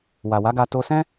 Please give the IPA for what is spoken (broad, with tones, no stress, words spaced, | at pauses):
wa˨wa˨˦ɡa˧ to˧sɛ̃˦